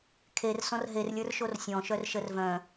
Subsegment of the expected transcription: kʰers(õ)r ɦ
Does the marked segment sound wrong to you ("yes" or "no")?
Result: yes